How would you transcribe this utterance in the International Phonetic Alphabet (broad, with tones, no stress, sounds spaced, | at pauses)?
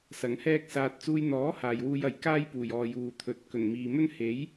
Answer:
s ɐ˨˧ ŋ h ɛː˥ k̚ s aː˧ t̚ t͡s uː˧ j n̪ ɔː˨˥ h aː˨ j w uː˧ j ɐ˨ j k aː˥ j p uː˨˩ j ɔː˨ j uː˨ t̪ʰ ɵ˨˥ t̚ k ɵ˨˩ n m iː˨ m ɵ˥ n h e˨˥ j